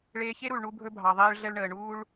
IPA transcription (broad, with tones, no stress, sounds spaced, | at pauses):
ɭ eː˧ ç e˦ ɾ u˨ ɭ ɳ u˧ bʱ ɵ˧ bʱ ɑ˨ ðˤ eː˧ ɭ ɮ ɛ˧ ɭ ɳ əː˨ ɳ uː˦ ɭ